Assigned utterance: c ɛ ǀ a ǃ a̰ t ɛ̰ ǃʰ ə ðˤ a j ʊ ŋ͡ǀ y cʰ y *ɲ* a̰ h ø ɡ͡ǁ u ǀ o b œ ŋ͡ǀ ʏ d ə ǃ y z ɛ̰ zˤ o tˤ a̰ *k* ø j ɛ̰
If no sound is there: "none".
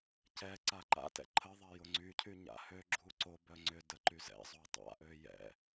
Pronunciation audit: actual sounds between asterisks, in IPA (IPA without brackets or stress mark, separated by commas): ɲ, ʔ